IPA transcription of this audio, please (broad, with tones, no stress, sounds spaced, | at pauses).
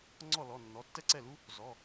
ŋ͡ǀ ɔ˥˩ l ɔ˩˧˩ nː ɔ˩˧˩ tː ɛ˥ ǀ ɛ˥˩ l u˥ | z ɔ˩˧˩